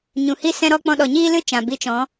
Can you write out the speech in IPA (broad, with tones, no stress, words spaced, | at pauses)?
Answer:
ɲũ˨hi˦ sɛ̃˧ɾɔ˧ k͡pɔ̃˧ɗɔ˨ɲiː˦lɨ˦ t͡ʃã˨ bi˧t͡ʃɔ̃˨˦